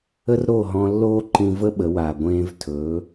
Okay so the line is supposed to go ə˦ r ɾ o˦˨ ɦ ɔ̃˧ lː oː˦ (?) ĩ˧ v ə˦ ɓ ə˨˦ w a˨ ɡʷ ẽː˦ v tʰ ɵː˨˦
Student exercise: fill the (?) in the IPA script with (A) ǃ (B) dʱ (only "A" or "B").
A